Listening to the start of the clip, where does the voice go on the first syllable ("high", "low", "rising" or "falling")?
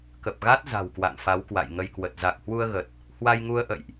low